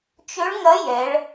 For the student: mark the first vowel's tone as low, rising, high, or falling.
rising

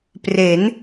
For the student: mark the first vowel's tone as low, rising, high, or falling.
rising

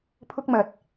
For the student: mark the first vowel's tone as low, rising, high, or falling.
high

